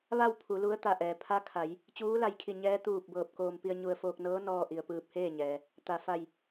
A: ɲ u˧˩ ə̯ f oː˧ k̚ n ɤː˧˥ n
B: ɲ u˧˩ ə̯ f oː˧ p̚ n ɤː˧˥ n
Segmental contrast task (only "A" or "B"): A